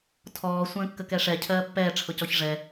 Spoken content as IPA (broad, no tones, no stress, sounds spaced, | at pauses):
tʰ ɔː sʷ ə̃ː kː ə k ɛ ʂ ɛ cʰ ɜː pː ɛː ʈ͡ʂʰ ʊ c ɔ ç ʐ ɛ